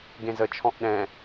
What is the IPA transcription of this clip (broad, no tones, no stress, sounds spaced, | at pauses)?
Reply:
ɡ ẽ z ə t͡ʃʰ ɔ̃ ʔ ɗ ɛ̃